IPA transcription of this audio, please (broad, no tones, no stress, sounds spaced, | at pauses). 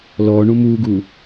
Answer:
l ɔː ɳ ũ m uː ɡ uː